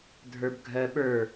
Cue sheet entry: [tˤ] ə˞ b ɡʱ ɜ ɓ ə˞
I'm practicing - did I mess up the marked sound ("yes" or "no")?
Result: yes